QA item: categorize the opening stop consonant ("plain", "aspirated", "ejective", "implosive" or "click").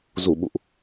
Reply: implosive